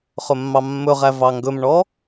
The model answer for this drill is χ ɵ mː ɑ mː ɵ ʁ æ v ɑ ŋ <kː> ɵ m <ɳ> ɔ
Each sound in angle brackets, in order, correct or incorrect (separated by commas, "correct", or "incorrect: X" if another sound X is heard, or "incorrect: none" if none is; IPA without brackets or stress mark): incorrect: ɡ, correct